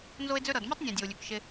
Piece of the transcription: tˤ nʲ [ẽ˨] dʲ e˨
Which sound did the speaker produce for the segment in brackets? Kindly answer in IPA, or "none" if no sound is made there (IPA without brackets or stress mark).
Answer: ẽ˨